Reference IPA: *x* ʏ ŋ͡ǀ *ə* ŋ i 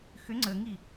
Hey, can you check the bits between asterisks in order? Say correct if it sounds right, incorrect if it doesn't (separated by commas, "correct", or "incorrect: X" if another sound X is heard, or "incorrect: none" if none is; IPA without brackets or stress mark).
correct, correct